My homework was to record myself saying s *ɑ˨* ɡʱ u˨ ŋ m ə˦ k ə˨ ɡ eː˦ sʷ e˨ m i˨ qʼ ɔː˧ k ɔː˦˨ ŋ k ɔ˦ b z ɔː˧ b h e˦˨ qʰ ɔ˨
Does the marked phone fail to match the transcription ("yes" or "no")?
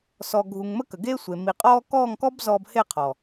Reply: yes